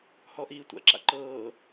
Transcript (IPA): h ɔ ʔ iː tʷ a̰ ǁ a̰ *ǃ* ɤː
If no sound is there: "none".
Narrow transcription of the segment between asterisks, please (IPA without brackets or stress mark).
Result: ǃ